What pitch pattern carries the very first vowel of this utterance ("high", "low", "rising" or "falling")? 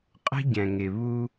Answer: high